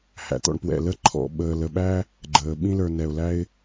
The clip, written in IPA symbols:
h æ̰˩ t̪ ɔ̰˨ ɳ p w ɛ̰˩ l ə˦ ǃʰ ɔ̰˩ ɓ əː˨ l ə˨ ɓ æ˥ | ɡ͡ǃ əː˩ ɓ ĩ˦ l ə˞˨ n ɛ˩ ʊ̯ l æ˦ ɪ̯

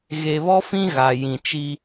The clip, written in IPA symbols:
ɣ e˨ β ɔ˦ f ĩ˦ ɣ a˨ j ĩ˨ t͡ʃ i˦

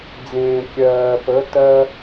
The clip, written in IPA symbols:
d͡z ẽː˩ kʲ ɜː˩ p ə˩˧ t ɜ˧

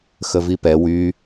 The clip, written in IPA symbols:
x ə v i p ɛ w y

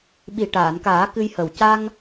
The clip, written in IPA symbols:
ɓ i˨˩ ʈ aː˨˩˨ n k aː˨˩˦ k ɨ˧ j h ə˨˩ w c a˧ ŋ

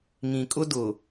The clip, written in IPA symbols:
ŋ ĩ˨ kʼ ʊ˦ d ʊ˨

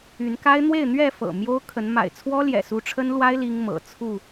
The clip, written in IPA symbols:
y˨˦ n k a˦ ɪ̯ n̪ w e˥˨ ɪ̯ n̪ ɥ ɛ˥˨ f ɤ̰˨˩ m j o˦ ʊ̯ kʰ ə˨˦ n m a̰˨˩ ɪ̯ t͡sʰ w ɔ˦ l j ɛ̰˨˩ s u˨˦ ʈ͡ʂʰ ə˦ n l w a˦ ɪ̯ l i˦ ŋ m ɤ̰˨˩ t͡sʰ u˥˨

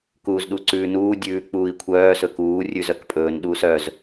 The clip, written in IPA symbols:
k uː z ɗ u ǀ ʉː n uː dʲ ʉː k͡p uː i̯ kʷʰ œː s ɵ k uː rʲ ʉ z œ k pʼ ɵː n ɗ uː s œ z

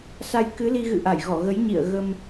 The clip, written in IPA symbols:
s a˧ j k ɨ˨˦ l i˧ ɣ ɨ̰˧˨ ʔ a˧˩ j ɣ ɔ˧˩ ɣ ə˨˦ j ɲ ḭ˧˨ ə̯ ɣ ə˧ m

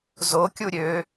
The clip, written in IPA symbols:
z o kʲ u ɾʲ ø

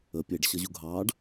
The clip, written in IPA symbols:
ə pʲ e ɖ ɕ ʌ ʑ u ɡʱ ɑː ɖ

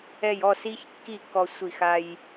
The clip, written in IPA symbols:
ɛ˧˩ j ɔ˥˨ s i˧ ç kː i˥˨ kː ɔ˧ sʷ i˧˩ x a˧ j

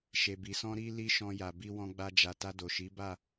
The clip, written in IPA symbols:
ʃ e˨ b i˨ s ɔ̃˧ ɾ i˧ l i˦ ʃ ɔ̃˧ j a˨ b i˧ w ɔ̃˧ ɡ͡b a˧ d͡ʒ a˨ t a˧ d o˨ ʃ i˨˦ b a˦˨

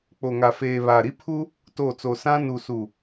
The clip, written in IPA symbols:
k͡p o˨ ŋ a˨ f eː˨ β a˨ ɾ i˦ pʰ u˦ | t o˦˨ t͡s o˨ s ã˦ n u˨ s u˨

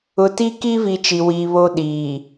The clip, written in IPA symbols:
ʊ˨ t i˦ k i˦ v i˨ t͡ʃ i˨ w iː˨ β o˦ ɗ iː˨

